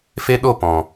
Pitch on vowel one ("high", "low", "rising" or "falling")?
high